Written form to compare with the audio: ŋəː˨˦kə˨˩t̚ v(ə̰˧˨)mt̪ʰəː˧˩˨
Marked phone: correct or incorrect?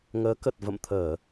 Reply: correct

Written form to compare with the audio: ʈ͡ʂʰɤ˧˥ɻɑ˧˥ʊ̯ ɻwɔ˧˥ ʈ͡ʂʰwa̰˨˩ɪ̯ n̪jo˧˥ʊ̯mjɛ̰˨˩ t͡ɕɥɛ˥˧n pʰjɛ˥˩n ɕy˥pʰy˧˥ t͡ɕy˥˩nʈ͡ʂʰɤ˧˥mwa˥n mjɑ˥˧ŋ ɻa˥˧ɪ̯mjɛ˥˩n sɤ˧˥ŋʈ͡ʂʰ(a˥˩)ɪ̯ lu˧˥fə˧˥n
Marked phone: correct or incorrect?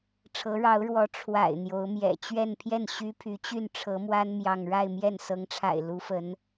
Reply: incorrect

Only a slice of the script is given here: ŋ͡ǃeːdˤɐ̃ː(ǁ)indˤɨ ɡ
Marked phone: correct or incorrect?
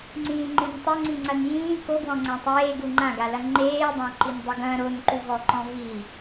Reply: incorrect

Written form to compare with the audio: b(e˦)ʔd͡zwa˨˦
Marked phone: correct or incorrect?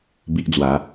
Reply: incorrect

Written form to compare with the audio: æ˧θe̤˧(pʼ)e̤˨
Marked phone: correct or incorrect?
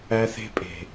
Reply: correct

